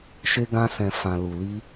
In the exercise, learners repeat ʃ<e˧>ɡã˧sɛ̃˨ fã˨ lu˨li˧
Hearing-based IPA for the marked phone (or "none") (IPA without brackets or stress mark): e˧